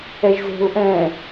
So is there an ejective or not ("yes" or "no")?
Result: no